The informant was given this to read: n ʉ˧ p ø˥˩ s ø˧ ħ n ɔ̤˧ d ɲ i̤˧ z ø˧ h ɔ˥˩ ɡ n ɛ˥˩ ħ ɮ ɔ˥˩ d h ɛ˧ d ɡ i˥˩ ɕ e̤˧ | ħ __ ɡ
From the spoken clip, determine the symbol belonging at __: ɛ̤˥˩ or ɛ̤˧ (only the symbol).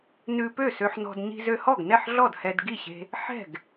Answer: ɛ̤˥˩